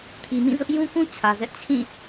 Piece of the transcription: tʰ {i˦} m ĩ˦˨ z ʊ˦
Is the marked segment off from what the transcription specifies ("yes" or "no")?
yes